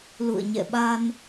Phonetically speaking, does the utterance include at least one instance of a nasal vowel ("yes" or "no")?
no